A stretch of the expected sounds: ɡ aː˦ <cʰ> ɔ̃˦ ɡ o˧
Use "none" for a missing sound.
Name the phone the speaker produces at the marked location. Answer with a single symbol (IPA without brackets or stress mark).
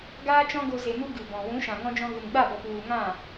t͡ʃ